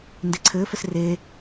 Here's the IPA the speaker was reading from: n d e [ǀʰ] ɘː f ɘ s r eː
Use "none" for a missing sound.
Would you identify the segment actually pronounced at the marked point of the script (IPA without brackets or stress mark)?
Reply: ǀʰ